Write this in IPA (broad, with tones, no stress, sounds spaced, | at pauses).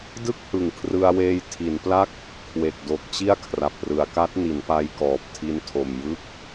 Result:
d ɯ˥˩ k̚ h ɯ˨˩ ŋ kʰ r ɯ˧ a̯ w eː˧ j tʰ i˩˦ n p l a˦˥ k̚ | kʰ w e˨˩ k̚ d o˨˩ k̚ t͡ɕ i˥˩ a̯ kʰ r a˨˩ p̚ r ɯ˩˦ a̯ k a˦˥ t̚ n i˩˦ n p a˧ j k ɔː˨˩ p̚ tʰ i˧ n tʰ o˨˩ m j ɯ˦˥ k̚